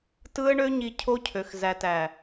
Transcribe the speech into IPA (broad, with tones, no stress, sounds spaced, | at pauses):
t ɯ˦ ə̯ ɳ ø˦ ɲ i˧ cʰ o˦ cʰ ø˨ x z æ˨ t æ˨